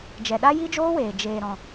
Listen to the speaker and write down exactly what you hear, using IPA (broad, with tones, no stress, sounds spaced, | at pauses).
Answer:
d͡ʒ ɛ˨ ɗ a˦ j i˦ d͡ʒ oː˦ w eː˨ d͡ʒ eː˨ ɾ ɔ̃˨